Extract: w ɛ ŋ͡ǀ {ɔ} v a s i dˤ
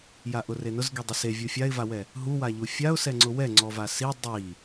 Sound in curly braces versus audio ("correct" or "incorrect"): correct